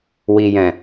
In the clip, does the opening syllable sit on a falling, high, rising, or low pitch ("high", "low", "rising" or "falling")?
low